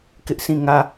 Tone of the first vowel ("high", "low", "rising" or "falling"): high